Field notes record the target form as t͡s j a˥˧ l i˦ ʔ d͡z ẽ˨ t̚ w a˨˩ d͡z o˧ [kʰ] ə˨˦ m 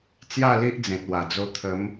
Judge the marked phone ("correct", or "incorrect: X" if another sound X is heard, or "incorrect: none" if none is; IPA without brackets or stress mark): incorrect: t̪ʰ